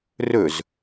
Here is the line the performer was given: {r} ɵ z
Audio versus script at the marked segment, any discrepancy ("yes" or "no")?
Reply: no